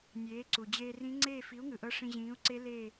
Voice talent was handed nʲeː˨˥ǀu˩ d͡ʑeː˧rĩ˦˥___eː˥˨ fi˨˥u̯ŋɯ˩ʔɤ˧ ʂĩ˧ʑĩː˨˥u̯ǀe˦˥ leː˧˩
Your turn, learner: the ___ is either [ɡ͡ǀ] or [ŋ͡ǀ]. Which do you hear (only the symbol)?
ŋ͡ǀ